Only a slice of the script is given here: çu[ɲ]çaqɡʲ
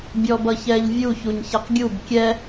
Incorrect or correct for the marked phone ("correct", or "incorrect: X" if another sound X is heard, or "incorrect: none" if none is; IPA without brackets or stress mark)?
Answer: correct